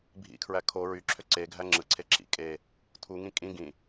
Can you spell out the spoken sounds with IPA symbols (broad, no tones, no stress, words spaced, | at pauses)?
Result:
bʱḭkʰɹæ kʰo ɹyǁʰø ǀe ɡʱæŋ͡ǁɯǀʰe ǁḭ kʼe | tʰuŋĩ kʼĩ ɡĩ